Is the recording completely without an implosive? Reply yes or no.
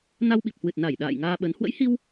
no